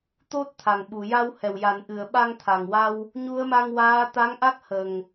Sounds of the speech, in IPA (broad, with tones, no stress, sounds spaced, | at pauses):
t̪ o˦˥ t̚ t̪ʰ a˨˩ ŋ ɓ u˨˩˨ j a˧ w h ɛ˨˩ w j a˨˩˨ n ʔ ɨ˨˩˨ ə̯ ɓ a˧ ŋ t̪ʰ a˨˩ ŋ w a˧ w | ɲ u˧˥ ə̯ m a˧ ŋ w aː˧˥ t̪ a˧˥ ŋ ʔ a˦˥ k̚ h ə˨˩ ŋ